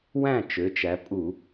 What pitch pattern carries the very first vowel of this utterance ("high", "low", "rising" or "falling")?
falling